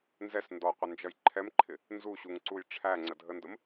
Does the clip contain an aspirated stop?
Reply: yes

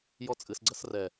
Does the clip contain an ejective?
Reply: yes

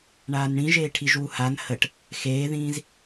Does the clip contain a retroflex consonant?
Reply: yes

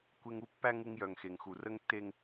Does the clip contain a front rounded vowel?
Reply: yes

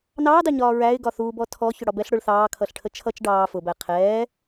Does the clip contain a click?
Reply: no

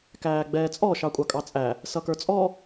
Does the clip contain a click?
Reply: no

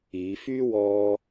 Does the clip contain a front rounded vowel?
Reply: yes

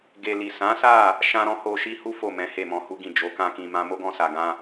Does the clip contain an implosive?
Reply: no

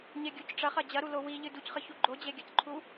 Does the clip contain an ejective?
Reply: no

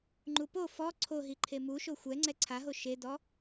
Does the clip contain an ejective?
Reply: no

